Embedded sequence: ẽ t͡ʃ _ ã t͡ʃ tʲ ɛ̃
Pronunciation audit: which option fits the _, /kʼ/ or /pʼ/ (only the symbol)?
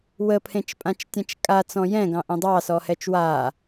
pʼ